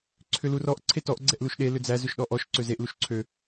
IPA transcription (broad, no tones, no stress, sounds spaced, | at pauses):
ǀʰ ʏ l u r ɔ ʔ ǀʰ e t ɔ ʔ ɡ͡ǀ ɛ ʔ l u ʃ ɗ e l ʏ d͡z æ z ʏ ʃ ɗ ɔ ʔ ɔ ʃ ǀ ø z e ʔ l u ʃ ǀʰ ø